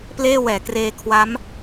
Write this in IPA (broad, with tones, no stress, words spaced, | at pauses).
pleː˥˩wɛː˩˦kreː˧kʰwa˦˥m